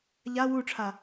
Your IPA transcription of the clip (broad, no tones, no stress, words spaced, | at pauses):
ʎa wuʈ͡ʂʰa